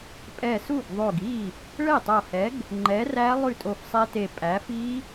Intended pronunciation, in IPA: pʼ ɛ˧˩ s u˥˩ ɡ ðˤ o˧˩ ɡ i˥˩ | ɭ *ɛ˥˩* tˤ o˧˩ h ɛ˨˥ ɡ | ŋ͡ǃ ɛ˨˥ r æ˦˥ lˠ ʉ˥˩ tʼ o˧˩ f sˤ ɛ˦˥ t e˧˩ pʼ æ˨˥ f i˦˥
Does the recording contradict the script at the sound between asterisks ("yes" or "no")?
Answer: no